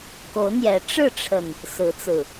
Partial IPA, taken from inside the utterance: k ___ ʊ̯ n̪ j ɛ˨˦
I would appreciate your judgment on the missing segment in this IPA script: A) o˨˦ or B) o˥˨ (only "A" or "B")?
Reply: A